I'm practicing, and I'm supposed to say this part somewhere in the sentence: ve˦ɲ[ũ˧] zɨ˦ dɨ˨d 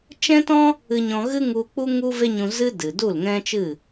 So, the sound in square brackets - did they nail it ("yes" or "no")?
yes